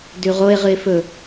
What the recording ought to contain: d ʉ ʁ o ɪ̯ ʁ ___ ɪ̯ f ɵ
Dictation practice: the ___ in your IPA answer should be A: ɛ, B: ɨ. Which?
B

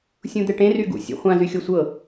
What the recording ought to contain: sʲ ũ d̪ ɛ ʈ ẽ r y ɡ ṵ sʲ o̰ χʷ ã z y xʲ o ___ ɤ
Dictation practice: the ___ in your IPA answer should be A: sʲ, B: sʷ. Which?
B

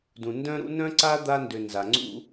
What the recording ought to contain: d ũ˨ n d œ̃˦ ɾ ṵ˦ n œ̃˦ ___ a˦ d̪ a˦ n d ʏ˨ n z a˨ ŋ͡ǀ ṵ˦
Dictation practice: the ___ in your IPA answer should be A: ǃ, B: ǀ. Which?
B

